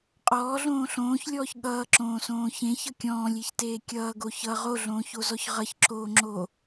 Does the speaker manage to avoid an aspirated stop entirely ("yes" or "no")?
yes